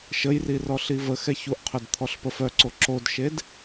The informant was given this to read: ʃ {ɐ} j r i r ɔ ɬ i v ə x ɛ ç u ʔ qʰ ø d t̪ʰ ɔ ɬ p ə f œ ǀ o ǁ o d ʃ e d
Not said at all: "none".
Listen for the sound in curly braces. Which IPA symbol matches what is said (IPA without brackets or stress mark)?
ə